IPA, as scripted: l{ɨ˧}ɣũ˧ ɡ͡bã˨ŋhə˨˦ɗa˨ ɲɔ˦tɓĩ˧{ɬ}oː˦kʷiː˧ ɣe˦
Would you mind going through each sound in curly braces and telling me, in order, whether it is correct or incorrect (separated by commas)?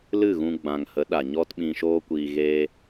incorrect, incorrect